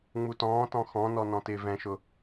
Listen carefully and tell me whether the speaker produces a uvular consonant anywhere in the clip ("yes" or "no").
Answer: no